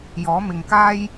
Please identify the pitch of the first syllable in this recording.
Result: rising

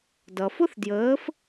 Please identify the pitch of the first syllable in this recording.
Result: low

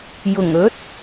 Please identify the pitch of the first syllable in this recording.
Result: low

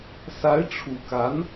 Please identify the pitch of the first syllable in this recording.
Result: rising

